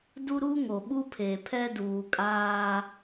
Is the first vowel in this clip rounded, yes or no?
yes